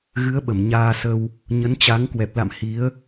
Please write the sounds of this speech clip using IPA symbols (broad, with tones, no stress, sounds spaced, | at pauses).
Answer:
ɣ ɨ˨˦ ə̯ ɓ ə˧˩ m ɲ aː˧ s ə˧ w | ɲ ə˨˦ n t͡ɕ a˨˦ ŋ k w ɛ˨˩ p̚ l a̰˧˨ m h i˨˦ ə̯